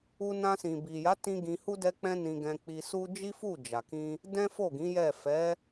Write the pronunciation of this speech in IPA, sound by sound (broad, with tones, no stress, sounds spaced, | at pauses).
u˧ n ã˧ s ĩ˨ b i˨ j a˨˦ t ĩ˧ ɡ ĩ˧ h u˦ d ɛ˦ k͡p ɛ̃˦ n ĩ˧ ɡ ɛ̃˧ k͡p i˧ s u˦ d͡ʒ i˦ f u˦˨ d͡ʒ a˨ k ĩ˧ | d ɛ̃˦ f o˦˨ ɡ ĩ˨˦ j ɛ˦˨ f ɛ˨˦